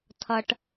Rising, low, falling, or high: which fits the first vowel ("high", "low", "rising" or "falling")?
low